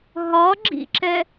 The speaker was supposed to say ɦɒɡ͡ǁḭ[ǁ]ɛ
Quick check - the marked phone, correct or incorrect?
correct